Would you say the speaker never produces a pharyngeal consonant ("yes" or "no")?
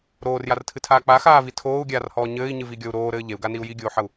no